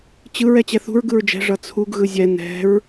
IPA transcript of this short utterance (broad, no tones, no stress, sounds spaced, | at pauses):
t͡ɕ ɯ ɹ ɛ t͡ɕ ɛ θ ṳ ɹ ɡ ɯ ɹ d͡ʒ ɛ̤ ʐ ʌ t͡sʰ u ɡ ɣ ɯ zʲ ɛ n ɛ̤ ɹ